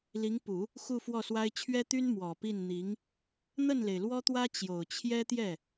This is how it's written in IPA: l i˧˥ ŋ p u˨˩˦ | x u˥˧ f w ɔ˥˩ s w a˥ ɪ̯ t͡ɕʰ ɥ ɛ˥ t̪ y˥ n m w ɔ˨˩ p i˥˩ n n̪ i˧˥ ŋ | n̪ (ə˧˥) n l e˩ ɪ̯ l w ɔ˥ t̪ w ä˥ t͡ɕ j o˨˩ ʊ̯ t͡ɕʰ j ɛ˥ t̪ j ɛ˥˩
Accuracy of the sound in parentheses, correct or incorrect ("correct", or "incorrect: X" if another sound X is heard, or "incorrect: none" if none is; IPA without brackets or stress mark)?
incorrect: ə˥˩